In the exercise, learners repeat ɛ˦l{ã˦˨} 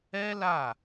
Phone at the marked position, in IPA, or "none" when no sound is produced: a˦˨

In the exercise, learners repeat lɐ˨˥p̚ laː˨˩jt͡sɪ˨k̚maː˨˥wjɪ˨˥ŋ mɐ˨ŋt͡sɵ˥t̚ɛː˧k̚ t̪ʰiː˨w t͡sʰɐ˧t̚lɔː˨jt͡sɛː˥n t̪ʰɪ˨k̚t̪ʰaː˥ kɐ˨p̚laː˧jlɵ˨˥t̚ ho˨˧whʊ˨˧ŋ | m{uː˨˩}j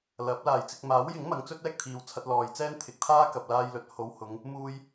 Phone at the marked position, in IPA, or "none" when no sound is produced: uː˧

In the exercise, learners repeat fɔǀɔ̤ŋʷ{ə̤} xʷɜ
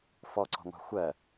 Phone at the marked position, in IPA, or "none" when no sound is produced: ɑ̤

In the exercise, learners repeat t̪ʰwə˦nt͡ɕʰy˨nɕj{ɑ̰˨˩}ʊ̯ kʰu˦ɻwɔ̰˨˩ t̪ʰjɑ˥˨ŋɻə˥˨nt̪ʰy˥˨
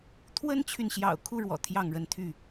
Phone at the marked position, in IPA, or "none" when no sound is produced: ɑ̰˨˩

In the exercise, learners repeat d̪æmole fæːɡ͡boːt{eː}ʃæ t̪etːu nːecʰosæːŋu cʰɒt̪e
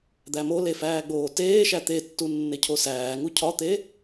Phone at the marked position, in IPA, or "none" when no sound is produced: eː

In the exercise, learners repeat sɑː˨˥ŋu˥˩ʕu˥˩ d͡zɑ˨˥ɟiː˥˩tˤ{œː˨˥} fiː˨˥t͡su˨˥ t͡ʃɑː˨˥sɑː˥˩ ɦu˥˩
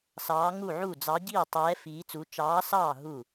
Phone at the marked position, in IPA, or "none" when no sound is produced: ɛː˨˥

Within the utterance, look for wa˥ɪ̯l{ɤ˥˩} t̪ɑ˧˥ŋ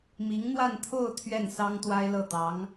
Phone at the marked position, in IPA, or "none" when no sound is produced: ɤ˥˩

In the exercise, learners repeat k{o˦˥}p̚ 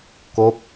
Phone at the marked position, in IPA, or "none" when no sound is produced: o˦˥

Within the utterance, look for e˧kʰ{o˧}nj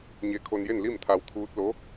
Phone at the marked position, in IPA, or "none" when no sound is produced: o˧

